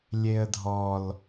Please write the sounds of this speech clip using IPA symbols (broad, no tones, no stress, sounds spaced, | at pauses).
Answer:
lʲ e ə̯ dʱ ɔ l